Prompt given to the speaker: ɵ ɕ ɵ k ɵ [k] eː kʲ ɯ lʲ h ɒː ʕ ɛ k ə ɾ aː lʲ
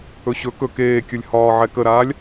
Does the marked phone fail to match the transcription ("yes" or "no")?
no